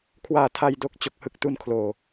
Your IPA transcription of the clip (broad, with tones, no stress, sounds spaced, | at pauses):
kʰ w aː˨˩ tʰ a˨˩ j d o˥˩ k̚ t͡ɕ o˨˩ k̚ h ɯ˥˩ k̚ t u˧ n kʰ l oː˨˩